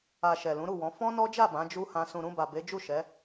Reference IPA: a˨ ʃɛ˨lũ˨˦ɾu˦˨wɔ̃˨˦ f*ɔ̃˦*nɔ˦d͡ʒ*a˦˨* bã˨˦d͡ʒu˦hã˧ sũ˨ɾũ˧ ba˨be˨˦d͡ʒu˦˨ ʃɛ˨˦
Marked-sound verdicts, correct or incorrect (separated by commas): correct, correct